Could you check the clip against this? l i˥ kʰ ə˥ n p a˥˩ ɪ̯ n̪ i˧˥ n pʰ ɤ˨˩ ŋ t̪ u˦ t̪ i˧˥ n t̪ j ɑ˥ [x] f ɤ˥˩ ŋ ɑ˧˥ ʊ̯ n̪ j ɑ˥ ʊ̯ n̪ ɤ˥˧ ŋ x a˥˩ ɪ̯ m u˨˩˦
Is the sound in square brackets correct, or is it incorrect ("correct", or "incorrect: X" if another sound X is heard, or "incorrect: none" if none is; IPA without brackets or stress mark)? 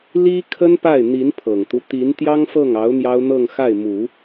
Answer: incorrect: ŋ